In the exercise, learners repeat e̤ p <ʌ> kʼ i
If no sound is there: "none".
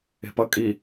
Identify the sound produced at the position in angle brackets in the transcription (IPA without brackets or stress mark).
ʌ